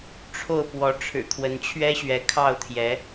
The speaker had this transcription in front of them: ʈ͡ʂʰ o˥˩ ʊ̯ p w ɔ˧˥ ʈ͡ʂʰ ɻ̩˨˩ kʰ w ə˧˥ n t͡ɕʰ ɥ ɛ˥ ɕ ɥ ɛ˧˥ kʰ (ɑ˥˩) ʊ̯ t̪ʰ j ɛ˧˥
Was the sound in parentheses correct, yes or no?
yes